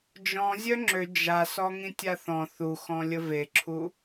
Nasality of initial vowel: nasal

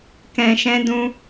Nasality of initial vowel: nasal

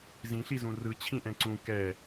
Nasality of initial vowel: nasal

